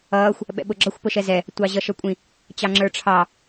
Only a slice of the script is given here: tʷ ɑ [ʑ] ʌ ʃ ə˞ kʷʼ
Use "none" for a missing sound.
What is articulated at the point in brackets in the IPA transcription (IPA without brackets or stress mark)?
ʑ